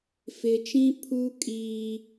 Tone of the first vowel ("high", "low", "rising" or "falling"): low